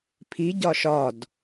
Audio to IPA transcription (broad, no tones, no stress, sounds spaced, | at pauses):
pʰ i ɟ ɒ ʃ ɒ d